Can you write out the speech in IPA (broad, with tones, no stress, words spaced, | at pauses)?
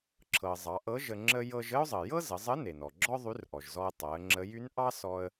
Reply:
ǁʰɤ˩ zˤɑ˩˧ʔɤ˧˥ ʒə˧ŋ͡ǁə˥ jɤ˧ʒə˥ʊ̯zˤə˩ jɤ˥zə˩˧zˤə˧˥ ne˩nɔ˩ɡ͡ǁɔ˥ ðˤy˧˥rʔɔ˩ʒzɔ˧ə̯ tˤɤ˩˧ə̯ŋ͡ǁə˧˥j y˧˥nʔɑ˥ sɔ˥ə̯